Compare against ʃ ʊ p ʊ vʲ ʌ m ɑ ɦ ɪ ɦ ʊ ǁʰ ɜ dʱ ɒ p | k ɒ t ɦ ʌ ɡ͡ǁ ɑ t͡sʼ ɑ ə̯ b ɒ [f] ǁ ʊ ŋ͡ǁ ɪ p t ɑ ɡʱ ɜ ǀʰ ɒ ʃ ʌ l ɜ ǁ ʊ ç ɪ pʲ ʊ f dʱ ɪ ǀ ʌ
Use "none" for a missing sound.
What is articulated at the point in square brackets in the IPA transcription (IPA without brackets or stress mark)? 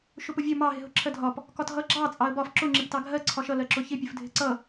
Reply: f